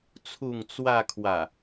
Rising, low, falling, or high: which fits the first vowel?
falling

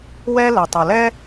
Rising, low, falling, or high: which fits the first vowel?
high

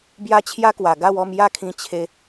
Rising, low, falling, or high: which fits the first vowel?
high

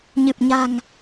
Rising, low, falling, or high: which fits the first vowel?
low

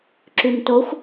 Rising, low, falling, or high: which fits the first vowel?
low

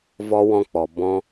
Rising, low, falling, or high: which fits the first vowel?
high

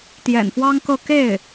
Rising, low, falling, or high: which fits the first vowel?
low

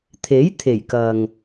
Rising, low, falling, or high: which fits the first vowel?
rising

